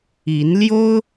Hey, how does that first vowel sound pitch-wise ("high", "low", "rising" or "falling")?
rising